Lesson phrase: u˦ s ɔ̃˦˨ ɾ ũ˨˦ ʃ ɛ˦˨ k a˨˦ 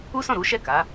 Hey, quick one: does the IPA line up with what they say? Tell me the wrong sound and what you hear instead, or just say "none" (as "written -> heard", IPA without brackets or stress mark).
ũ˨˦ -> u˨˦